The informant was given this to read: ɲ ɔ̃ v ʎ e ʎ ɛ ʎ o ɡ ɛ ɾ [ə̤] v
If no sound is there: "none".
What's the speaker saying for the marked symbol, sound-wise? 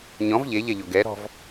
ɔ̤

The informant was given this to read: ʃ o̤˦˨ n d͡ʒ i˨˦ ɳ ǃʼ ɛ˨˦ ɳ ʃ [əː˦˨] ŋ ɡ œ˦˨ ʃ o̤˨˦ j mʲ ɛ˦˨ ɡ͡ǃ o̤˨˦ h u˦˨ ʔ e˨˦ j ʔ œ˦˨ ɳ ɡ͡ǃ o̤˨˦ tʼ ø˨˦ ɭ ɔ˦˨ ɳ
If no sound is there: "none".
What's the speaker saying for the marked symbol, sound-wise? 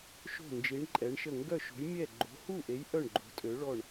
ə˦˨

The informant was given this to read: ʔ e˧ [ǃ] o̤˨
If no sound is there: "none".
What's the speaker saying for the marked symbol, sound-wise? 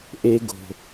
ɡ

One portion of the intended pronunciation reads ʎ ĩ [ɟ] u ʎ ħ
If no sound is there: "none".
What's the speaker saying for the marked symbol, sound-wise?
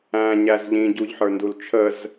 ɟ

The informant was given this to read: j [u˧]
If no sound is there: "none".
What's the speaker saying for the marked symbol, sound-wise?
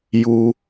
u˧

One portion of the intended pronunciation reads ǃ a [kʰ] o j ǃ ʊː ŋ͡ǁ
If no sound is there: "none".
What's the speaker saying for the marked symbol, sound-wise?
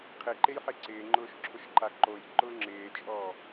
ǃ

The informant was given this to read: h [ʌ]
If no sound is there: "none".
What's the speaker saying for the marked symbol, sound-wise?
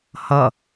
ʌ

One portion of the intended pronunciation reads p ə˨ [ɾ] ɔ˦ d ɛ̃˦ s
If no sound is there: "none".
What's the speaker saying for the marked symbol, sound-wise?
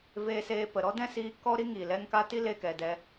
ɾ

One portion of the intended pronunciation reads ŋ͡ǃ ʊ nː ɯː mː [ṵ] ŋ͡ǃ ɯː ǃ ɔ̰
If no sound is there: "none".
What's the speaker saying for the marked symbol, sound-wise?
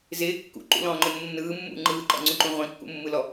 ṵ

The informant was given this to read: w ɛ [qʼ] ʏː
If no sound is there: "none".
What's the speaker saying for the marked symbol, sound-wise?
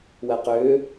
q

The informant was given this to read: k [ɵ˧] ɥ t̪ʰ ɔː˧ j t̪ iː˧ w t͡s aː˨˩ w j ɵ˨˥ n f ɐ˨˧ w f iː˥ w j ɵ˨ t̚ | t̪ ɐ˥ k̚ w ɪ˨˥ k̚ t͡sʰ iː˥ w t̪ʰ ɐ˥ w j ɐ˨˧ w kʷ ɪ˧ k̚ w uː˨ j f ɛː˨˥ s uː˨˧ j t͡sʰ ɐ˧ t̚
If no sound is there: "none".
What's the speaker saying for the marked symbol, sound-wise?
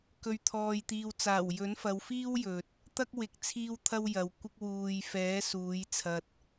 ɵ˧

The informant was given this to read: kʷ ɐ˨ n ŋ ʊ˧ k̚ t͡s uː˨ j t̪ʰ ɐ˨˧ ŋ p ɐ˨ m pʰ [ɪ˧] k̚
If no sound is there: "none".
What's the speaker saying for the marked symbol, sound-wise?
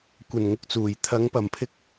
ɪ˧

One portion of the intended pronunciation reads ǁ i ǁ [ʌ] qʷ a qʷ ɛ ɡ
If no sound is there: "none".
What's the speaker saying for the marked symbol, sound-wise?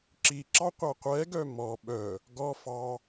ɑ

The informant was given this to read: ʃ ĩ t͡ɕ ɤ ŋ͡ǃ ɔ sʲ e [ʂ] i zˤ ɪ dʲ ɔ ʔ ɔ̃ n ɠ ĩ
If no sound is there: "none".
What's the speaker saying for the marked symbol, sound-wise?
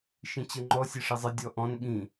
ʂ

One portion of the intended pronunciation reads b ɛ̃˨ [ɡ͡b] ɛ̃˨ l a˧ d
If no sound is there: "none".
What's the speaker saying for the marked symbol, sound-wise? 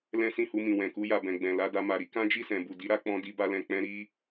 ɡ͡b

